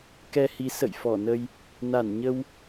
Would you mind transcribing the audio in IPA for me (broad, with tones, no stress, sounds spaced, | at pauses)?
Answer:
k ɛ˧ h i˨˦ s ə̰˧˨ j f ɔ˧˩ n ə˧ j | n a˧˩ n ɲ ə˧ w